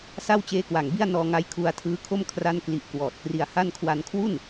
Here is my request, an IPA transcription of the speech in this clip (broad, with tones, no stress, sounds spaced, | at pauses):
s a˥˩ w t͡ɕ eː˦˥ k w a˨˩ ŋ b i˥˩ a̯ n ɔː˧ ŋ a˧ j kʰ u˧ a̯ tʰ ɯː˦˥ kʰ o˥˩ m kʰ r a˥˩ n k l i˦˥ ʔ k w ɔː˨˩ t̚ k r i˧ a̯ h a˥˩ n kʰ w a˧ n kʰ w u˥˩ n